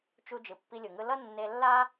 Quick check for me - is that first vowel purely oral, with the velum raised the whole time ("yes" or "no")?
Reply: yes